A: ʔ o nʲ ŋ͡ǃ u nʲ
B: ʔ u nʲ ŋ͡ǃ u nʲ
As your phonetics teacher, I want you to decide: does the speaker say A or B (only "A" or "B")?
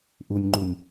B